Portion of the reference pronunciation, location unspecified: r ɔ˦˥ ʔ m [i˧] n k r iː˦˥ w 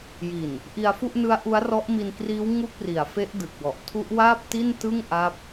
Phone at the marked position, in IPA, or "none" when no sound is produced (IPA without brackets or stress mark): i˧